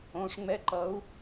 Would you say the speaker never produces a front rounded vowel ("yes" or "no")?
yes